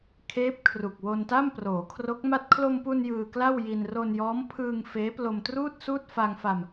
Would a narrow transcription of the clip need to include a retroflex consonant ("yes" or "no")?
no